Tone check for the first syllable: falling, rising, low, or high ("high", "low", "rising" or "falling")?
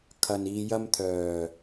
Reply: low